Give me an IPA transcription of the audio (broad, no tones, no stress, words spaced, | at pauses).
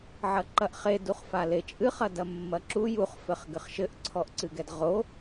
ʕɐǃɐʔχe duχfalet͡ʃʼɨχ ɐdɐmːɐǁu juχ fɘχɡɘχʃɘʔ ǀʰɔʔǀɨɡɛdʁo